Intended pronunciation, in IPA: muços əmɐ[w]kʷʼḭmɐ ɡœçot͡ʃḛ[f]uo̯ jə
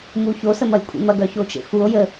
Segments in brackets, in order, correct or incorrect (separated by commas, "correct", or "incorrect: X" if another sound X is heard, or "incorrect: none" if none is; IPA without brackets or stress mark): incorrect: j, correct